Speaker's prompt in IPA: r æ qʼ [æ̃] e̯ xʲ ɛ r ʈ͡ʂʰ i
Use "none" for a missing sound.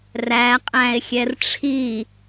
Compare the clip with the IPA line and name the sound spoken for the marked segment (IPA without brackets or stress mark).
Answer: æ̃